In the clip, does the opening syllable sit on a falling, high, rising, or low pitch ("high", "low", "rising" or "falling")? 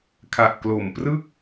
low